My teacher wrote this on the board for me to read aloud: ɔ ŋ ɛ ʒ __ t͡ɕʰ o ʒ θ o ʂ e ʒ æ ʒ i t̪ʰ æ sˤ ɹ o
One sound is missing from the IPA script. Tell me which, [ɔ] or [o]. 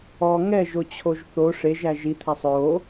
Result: o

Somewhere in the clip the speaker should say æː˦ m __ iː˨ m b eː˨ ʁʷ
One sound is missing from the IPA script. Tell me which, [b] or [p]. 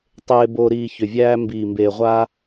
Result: b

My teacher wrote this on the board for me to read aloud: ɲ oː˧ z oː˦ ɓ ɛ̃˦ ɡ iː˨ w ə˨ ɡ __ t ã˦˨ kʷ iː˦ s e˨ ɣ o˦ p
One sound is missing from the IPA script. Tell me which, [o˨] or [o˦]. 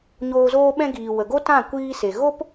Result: o˦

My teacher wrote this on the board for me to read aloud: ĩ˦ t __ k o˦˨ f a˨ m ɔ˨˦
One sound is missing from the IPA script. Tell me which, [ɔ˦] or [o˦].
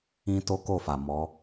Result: o˦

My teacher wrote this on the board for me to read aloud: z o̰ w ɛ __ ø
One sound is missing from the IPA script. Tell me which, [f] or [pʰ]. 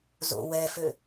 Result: f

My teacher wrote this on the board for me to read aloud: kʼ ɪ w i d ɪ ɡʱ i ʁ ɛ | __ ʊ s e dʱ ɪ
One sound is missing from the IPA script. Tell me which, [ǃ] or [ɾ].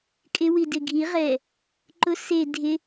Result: ǃ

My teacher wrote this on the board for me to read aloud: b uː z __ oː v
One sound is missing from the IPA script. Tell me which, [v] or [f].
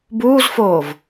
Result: f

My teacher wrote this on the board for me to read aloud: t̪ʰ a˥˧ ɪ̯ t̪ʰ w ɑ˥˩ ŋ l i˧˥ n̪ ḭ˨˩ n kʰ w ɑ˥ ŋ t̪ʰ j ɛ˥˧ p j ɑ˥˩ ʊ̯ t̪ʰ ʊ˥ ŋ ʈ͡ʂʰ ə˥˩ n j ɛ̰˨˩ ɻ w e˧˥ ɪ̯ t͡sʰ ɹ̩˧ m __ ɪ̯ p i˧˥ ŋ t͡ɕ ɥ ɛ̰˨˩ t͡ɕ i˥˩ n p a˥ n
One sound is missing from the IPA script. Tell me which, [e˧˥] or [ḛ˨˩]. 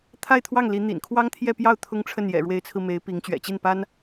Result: e˧˥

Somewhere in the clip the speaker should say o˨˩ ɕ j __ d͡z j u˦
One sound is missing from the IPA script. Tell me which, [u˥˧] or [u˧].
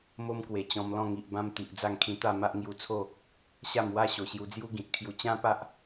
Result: u˧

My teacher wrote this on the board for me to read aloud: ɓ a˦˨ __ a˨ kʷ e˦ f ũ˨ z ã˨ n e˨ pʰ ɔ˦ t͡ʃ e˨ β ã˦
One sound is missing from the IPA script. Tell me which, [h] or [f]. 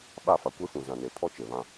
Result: f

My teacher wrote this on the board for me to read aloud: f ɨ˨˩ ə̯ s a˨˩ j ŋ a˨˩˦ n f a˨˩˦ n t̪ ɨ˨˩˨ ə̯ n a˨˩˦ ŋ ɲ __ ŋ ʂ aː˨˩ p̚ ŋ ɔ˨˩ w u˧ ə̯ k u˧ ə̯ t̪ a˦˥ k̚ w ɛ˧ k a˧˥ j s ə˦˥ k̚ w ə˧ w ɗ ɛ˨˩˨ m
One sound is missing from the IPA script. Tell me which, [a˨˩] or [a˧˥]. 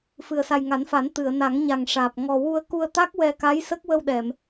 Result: a˨˩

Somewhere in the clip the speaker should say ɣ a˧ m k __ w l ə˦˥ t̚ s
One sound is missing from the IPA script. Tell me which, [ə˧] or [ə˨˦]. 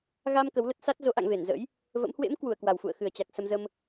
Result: ə˨˦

